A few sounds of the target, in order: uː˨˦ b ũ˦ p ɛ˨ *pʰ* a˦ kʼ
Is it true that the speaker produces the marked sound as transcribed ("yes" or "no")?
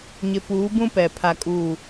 yes